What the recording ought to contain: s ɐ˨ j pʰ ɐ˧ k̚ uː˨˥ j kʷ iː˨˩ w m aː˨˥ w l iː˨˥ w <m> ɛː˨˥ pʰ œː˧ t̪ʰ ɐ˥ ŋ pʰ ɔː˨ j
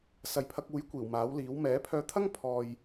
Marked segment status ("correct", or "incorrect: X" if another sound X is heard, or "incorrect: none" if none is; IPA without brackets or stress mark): correct